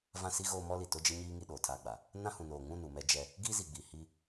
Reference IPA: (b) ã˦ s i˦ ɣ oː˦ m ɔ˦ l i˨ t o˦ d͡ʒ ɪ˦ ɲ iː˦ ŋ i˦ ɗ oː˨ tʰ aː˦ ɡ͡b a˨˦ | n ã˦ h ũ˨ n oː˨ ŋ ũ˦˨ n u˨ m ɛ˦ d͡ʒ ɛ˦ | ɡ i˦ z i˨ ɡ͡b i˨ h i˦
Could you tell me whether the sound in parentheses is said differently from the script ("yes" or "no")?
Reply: yes